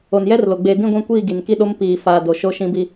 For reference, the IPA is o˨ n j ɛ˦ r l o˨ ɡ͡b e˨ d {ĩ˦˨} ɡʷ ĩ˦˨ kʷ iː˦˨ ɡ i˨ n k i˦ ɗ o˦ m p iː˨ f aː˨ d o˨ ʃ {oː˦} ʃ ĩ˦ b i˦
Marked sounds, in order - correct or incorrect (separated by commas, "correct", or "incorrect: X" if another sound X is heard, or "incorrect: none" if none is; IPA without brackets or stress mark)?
correct, incorrect: o˦